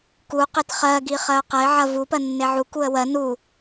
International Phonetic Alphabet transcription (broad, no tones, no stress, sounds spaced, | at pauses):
k u q e t χ ɜ ɡ i χ ɜ ʊ̯ q ɐ ɪ̯ ʕ ɐ v u p ɜ nː e ʕ u k u ə̯ w ɜ n u